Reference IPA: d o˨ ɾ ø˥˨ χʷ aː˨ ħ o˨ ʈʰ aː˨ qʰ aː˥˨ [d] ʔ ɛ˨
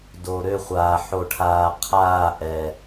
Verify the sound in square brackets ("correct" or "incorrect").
incorrect